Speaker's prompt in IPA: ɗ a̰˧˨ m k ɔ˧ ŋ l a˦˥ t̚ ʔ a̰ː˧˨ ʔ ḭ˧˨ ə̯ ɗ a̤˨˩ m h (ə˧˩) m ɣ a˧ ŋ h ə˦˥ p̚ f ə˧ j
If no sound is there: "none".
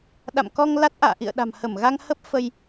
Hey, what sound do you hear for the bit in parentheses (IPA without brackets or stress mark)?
ə˧˩